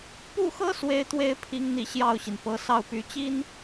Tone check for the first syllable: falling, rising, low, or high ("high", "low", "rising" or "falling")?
falling